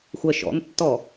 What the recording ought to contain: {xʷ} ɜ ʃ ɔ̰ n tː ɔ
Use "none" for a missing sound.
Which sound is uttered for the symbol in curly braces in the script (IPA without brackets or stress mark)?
xʷ